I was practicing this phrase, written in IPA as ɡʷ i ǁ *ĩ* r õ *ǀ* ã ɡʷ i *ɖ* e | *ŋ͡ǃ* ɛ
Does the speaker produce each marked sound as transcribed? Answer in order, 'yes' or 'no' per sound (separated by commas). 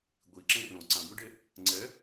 no, yes, yes, no